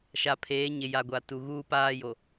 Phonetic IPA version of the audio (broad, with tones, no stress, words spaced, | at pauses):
ʃa˨pʰeː˨˦ɲɪ˨ ja˨ɡʷa˨ tu˨ɣuː˦paː˦jo˨